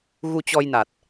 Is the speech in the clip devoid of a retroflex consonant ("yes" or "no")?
yes